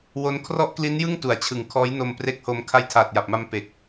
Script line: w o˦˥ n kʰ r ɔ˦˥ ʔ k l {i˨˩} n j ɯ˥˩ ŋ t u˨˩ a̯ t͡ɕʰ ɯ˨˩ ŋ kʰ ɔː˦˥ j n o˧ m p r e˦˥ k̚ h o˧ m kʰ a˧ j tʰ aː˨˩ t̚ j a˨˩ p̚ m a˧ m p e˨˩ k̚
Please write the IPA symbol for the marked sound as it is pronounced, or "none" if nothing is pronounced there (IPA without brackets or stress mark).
i˦˥